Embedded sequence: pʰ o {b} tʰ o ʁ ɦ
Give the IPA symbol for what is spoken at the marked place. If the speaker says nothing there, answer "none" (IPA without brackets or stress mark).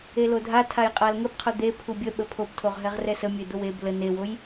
b